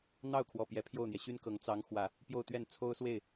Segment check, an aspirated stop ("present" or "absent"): present